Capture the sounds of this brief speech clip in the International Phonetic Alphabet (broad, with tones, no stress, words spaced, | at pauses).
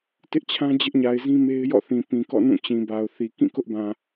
tɪ˦ʔt͡ɕʰã˦ d͡ʑɪ˦ʔɲa˨ɪ̯zĩ˦me˦ɪ̯ jɔ̰˦˨θĩ˨pĩ˨kɔ̰˦˨ nũ˦˨ t͡ɕĩ˨ba˨ʊ̯θi˨ kĩ˦˨kʊ˦ʔbã˨